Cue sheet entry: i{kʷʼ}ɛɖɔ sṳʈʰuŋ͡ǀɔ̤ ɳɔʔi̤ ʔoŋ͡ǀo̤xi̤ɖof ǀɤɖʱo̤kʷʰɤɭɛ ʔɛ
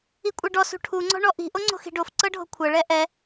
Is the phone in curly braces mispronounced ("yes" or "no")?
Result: no